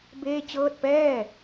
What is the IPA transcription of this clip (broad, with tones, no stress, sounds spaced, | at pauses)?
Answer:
b eː˥˩ t͡ɕ ɤː˥˩ t̚ p ɛː˥˩